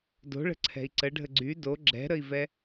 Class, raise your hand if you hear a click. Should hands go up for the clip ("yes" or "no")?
yes